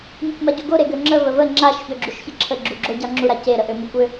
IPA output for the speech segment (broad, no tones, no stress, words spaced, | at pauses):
mikʷmaɟuɡo ɾeɡøŋ͡ǁə vəvə ŋ͡ǁaʃ çøɡ͡ǁuʃçəǁʰə ɡ͡ǁuɡ͡ǁoɟɑŋ͡ǁu ɾace ɾəʔømukʷø